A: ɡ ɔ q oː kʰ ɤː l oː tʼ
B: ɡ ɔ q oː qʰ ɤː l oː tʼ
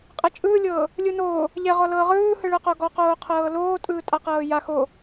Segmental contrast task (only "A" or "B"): B